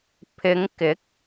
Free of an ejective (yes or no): yes